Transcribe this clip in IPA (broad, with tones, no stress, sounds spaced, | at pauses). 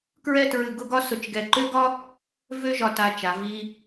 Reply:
k ɹ ɛ˥˧ t ɹ ɨ˧˩ ɡ ʊ˥ ɡ ɒ˥ s ʊ˧˩ t͡ʃ ɡ ɛ˧˩ ǃ ø˥ ɡ ɒ˥ | v ø˥ ʒ ɒ˧ t a˧ t͡ʃ a˩˧ v i˧